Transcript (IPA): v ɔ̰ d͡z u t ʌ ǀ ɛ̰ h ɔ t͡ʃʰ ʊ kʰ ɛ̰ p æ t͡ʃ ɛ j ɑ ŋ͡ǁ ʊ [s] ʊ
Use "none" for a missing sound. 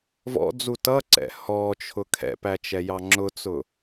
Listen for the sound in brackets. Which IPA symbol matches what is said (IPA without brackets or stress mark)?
t͡s